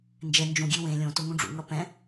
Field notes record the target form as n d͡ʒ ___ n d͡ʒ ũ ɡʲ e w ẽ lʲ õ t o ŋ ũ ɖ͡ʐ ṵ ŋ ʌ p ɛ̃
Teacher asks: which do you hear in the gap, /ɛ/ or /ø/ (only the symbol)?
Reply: ɛ